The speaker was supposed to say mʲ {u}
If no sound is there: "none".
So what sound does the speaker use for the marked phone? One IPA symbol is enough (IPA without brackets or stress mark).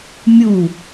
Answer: u